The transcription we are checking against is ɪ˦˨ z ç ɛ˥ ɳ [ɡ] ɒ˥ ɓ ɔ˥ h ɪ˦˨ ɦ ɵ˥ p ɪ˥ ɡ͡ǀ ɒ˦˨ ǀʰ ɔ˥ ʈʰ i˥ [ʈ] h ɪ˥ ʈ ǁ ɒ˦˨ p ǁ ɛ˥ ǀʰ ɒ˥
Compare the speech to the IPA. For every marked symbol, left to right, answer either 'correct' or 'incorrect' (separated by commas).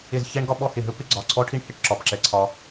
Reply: correct, incorrect